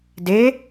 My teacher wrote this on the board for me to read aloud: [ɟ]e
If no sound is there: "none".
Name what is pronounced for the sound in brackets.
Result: d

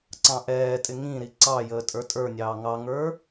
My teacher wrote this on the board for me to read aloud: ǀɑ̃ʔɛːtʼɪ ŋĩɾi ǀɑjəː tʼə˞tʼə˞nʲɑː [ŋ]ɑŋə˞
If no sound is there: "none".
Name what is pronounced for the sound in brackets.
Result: ŋ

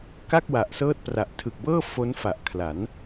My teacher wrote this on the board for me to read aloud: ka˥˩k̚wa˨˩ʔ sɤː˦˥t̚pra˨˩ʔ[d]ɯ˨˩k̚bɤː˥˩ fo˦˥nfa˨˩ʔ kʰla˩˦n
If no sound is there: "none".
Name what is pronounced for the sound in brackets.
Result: tʰ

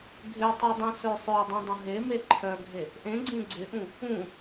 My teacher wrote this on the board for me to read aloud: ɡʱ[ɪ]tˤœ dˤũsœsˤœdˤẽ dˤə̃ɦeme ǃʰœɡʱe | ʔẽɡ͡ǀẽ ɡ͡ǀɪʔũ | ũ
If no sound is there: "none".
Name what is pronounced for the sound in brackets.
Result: ɪ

